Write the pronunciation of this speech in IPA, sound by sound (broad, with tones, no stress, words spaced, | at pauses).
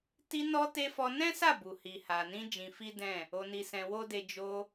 ti˧nɔ˧te˧ fɔ˧nɛ̃˦sa˦˨ bu˨hi˨ ha˨nĩ˧ d͡ʒĩ˧fi˦ dɛ̃˦˨ | o˧ni˧sɛ̃˧ wo˦de˧ d͡ʒo˧